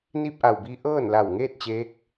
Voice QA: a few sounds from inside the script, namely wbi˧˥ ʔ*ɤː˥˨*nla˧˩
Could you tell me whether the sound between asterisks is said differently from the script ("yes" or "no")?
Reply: no